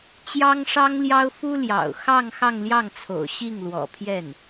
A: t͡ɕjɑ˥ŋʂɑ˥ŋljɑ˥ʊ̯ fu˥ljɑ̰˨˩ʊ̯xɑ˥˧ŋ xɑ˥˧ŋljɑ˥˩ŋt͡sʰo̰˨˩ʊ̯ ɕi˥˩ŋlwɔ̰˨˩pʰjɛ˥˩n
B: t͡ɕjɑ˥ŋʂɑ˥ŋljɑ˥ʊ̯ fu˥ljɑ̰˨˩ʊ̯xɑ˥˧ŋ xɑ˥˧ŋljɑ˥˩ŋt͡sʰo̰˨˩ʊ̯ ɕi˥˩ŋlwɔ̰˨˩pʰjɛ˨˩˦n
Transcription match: A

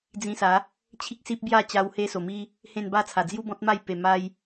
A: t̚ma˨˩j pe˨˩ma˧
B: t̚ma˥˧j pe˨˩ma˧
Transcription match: B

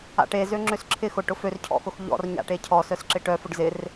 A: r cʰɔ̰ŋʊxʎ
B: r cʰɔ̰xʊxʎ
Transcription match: B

